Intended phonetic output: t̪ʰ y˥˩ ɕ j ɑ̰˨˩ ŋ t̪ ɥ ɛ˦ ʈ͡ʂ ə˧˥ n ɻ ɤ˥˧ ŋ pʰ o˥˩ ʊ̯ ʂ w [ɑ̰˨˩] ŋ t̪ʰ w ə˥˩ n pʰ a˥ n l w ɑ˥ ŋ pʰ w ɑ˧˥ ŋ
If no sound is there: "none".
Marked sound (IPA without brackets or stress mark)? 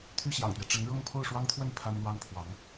ɑ˥